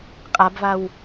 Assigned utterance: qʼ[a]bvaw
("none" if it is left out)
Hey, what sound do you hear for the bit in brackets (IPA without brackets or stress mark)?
a